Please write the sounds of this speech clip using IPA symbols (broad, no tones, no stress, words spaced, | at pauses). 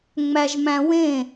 ŋ͡mæʒmæ̃wẽ